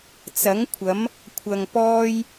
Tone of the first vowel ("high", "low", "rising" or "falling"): rising